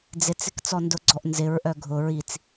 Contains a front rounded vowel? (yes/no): yes